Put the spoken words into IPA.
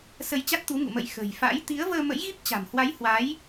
s ə˧ j t͡ɕ a˦˥ t̚ t̪ u˨˦ ŋ ṵ˧˨ m ə̰˧˨ j x ə̤˨˩ j f a̰˧˥ j t̪ i˨˦ ə̯ v əː˧ m ə̰˧˥ j ɣ i˦˥ p̚ t͡ɕ a̤˨˩ m h w a˨˦ j h w a˨˦ j

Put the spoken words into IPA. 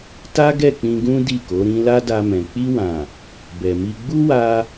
t a˦ ɡ ɛ˦˨ k͡p ĩ˧ ɡ ũ˦ d i˦˨ k o˨˦ ɾ ĩ˦ l a˦ d a˧ m ɛ̃˨ k͡p i˧ w ã˨ | b ɛ˨ m i˧ ɡ͡b u˦ w a˧

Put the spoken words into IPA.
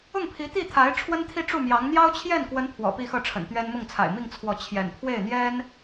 ʊ˥˩ ŋ pʰ i˧˥ t̪ i˥˩ t̪ʰ a˧˥ ɪ̯ ʈ͡ʂʰ w ə˥ n t̪ʰ i˥˧ ʈ͡ʂ u˥˩ m j ɑ˧˥ ŋ n̪ j ɑ˥ ʊ̯ t͡ɕʰ j ɛ˥˩ n k w ə˧˥ n pʰ w ɔ̰˨˩ p i˥˧ x ɤ˥˩ ʈ͡ʂʰ ə̰˨˩ n t̪ ɥ ɛ˥ n m ʊ˥˩ ŋ t͡sʰ a̰˨˩ ɪ̯ m i˥˧ ŋ t͡sʰ w ɔ˥˩ t͡ɕʰ j ɛ̰˨˩ n pʰ w e˥˩ ɪ̯ n̪ j ɛ˥ n

